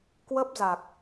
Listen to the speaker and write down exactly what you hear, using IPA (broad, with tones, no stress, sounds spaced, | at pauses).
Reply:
k w ə˦˥ p̚ z a˨˩ k̚